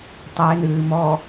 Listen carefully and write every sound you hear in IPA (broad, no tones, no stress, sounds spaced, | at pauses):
tˤ e n ɨː m ɔ